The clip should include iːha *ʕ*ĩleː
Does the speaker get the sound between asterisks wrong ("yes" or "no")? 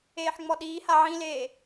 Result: no